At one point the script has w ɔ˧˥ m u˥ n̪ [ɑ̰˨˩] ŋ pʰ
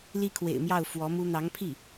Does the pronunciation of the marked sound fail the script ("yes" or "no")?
yes